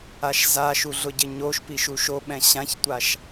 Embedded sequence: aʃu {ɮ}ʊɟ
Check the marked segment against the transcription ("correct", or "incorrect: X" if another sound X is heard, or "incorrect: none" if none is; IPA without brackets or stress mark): correct